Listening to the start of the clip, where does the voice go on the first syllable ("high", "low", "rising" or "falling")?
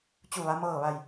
falling